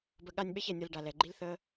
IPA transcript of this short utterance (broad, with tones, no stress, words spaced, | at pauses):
bə˧ɠa˦nʲ ɓɛ˦çɛ˨nʲʌ˧l ɖa˨lɛ˨ɡ͡ǃi˦l θə˦